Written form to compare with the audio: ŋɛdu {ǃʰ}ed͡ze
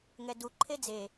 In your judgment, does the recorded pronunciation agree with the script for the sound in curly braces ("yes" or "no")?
yes